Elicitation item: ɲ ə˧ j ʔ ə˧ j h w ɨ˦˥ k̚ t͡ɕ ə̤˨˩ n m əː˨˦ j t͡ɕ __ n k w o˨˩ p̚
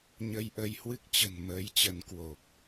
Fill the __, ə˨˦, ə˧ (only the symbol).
ə˨˦